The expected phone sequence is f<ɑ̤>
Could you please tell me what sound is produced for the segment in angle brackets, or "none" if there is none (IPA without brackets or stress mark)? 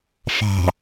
ɑ̤